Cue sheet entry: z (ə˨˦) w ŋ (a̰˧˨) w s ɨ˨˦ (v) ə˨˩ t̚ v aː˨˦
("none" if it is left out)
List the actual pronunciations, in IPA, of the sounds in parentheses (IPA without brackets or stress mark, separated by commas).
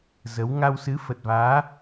ə˨˦, a˧, f